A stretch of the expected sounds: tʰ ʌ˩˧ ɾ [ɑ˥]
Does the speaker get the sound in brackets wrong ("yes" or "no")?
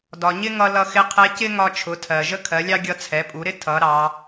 yes